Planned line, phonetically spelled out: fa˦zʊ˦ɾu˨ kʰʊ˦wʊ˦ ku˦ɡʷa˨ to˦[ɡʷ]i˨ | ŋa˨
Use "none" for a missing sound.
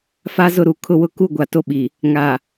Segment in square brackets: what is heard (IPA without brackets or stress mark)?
ɓ